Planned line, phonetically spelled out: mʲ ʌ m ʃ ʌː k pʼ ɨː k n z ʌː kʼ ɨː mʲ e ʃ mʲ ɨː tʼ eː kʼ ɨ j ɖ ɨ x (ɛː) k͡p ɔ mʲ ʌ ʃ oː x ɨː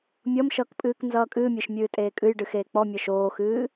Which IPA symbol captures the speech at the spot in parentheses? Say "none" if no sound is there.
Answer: eː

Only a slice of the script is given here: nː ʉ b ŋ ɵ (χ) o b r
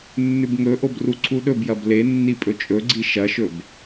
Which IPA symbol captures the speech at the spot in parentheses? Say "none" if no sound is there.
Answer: ʔ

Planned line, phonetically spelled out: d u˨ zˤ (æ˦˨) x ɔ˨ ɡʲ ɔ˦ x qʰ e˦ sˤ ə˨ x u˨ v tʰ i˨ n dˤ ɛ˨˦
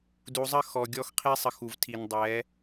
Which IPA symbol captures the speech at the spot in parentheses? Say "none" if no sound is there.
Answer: ə˦˨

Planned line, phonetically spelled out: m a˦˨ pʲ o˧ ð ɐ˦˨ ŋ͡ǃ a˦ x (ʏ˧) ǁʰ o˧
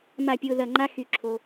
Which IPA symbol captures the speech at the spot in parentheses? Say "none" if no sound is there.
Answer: y˧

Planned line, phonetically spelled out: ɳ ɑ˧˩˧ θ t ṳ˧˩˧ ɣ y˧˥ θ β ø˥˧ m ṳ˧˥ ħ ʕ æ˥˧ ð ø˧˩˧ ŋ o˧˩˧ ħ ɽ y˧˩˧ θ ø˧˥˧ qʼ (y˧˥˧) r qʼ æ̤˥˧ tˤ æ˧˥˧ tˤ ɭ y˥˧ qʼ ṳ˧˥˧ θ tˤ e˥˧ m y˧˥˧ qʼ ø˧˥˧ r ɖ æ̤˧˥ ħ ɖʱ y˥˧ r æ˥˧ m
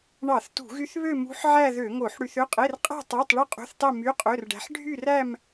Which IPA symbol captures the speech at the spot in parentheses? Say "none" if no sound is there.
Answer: e˧˥˧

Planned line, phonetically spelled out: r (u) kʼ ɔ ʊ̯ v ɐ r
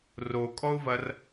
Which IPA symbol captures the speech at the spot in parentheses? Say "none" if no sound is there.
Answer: o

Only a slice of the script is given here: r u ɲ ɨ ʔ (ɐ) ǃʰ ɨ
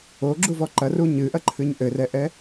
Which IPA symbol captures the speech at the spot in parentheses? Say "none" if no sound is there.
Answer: ɐ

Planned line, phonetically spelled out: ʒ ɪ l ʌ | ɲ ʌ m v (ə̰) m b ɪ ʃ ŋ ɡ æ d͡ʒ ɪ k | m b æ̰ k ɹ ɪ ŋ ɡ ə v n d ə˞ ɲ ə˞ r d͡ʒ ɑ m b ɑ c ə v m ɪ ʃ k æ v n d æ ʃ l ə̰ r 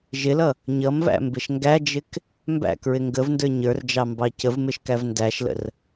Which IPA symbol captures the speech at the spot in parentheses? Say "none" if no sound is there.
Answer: æ̰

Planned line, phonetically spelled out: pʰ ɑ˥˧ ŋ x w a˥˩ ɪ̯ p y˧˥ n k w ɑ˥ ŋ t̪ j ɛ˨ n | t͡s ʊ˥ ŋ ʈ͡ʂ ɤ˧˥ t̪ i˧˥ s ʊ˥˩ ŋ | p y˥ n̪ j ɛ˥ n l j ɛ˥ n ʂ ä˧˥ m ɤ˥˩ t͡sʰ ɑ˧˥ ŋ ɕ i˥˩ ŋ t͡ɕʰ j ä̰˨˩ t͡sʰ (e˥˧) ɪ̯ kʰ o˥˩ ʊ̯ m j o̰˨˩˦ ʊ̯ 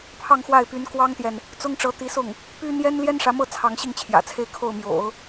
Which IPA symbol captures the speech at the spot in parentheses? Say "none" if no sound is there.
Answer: e˥˧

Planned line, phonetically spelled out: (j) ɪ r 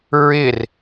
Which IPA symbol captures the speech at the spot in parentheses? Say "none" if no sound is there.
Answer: ɹ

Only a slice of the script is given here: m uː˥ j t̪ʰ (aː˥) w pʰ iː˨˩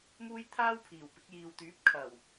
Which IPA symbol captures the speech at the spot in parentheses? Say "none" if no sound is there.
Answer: aː˥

